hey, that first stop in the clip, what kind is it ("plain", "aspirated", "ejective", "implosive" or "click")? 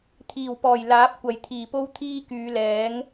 aspirated